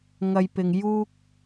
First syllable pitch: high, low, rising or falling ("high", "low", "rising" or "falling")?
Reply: low